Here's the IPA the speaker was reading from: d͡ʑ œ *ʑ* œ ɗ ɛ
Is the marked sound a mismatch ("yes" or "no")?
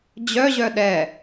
no